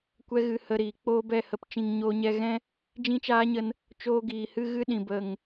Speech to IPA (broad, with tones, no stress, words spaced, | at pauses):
kʷɛ˦ɣɨ˧hə˧ɾiː˨ k͡poː˦bɛ˦˨hə˧pt͡ʃĩ˧ŋ ɲoː˧ɲɛ˧ɣɛ̃˦ | d͡ʒĩ˦t͡ʃaː˦ɲə˧n | t͡ʃoː˧ɡiː˨ hɨ˦ɣɨ˦ɗĩ˨ bə˨ŋ